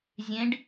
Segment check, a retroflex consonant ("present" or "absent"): present